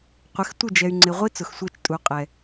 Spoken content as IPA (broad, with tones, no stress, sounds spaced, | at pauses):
qʷ ɪ˨˦ x tʷ ɪ˦˨ d͡ʒ ɛ˨ y̯ ŋ͡ǀ ɪ˨ ʁʷ i˦ t͡s ʊ˨ x sʷ ɛ˦˨ t͡ʃ tʼ u˨ qʼ ɛ˨